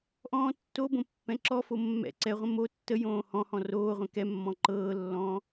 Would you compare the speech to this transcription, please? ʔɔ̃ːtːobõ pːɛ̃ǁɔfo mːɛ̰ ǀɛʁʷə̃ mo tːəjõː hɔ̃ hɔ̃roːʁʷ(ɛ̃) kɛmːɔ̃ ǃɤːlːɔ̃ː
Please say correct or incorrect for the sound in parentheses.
correct